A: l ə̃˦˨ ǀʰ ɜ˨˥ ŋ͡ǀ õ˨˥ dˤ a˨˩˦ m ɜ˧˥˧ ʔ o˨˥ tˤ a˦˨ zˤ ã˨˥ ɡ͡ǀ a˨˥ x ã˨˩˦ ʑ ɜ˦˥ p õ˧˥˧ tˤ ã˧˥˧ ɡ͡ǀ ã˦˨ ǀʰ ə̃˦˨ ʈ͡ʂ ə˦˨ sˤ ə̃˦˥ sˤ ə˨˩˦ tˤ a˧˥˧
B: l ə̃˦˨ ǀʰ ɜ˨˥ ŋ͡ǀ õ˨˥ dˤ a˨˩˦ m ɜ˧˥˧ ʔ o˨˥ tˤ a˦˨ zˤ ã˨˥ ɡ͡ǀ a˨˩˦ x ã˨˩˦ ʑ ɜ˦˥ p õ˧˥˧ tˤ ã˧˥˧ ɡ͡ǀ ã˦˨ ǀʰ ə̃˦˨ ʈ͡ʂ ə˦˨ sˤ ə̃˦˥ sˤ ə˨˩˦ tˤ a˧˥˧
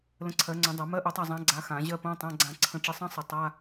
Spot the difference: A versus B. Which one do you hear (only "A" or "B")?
A